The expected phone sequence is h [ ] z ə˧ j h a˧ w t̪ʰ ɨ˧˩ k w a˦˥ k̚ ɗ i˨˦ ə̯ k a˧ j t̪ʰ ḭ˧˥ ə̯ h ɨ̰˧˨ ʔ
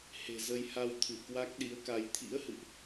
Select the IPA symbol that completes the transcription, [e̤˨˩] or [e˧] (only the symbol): e̤˨˩